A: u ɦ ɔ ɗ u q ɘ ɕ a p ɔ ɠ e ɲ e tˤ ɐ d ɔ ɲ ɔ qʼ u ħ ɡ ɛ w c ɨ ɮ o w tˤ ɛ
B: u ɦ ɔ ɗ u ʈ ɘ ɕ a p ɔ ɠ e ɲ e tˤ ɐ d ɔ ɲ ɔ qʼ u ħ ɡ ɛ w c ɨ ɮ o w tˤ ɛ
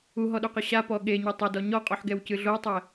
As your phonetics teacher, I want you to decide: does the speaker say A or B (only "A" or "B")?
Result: A